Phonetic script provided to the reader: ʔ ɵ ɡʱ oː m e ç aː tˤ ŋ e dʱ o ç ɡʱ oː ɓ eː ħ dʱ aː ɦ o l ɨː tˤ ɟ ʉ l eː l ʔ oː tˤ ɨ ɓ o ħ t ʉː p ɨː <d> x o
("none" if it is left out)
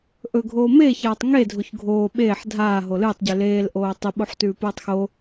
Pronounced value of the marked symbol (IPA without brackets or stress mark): tˤ